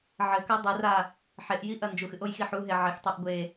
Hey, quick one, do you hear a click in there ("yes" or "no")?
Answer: no